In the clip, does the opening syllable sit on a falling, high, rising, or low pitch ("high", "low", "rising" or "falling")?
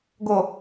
low